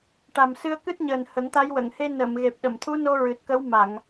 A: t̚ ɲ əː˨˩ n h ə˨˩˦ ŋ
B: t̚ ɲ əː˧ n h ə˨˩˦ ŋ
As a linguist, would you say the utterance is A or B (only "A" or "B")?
A